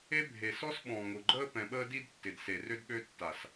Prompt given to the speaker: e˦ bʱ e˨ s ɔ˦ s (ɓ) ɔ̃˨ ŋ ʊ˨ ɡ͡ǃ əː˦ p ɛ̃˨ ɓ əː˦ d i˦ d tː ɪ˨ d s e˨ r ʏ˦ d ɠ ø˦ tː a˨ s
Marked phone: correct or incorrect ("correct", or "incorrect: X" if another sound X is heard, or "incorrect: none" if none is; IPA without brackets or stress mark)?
correct